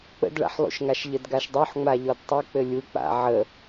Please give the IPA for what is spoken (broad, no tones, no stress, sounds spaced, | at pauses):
k͡p ə̰ d ɭ a̰ ħ lˠ ṵ ʃ ŋ a ʃ ʎ ə d ɡ a ʃ dˤ o ħ ŋ͡m a ʎ ɔ d tˤ ɘ k͡p ɘ lʲ u k͡p a̰ ʕ ə